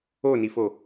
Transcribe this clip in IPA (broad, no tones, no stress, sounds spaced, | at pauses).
o n i f o